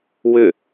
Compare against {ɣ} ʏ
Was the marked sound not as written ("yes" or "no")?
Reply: yes